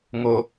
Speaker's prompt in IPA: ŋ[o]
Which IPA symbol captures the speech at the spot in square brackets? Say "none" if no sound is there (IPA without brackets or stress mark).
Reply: o